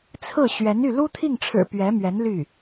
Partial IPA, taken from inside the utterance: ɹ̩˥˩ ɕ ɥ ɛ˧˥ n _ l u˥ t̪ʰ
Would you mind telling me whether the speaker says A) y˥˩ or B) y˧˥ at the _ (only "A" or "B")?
A